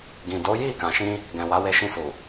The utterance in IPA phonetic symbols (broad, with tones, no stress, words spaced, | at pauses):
ɡĩ˨do˨˦ ji˦˨kã˨ʃĩ˧ | ɡɛ̃˨wa˨˦we˧ʃĩ˧ su˨